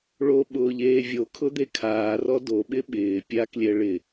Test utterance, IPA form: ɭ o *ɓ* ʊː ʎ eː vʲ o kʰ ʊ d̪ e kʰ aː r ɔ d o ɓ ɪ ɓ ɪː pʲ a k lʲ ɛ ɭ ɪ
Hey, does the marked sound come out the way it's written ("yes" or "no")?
yes